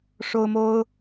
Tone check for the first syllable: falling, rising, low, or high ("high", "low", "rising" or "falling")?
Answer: high